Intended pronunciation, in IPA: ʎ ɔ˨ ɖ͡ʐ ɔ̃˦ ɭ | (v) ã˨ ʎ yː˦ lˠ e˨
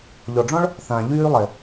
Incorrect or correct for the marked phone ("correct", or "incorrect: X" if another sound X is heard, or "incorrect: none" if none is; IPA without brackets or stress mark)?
incorrect: θ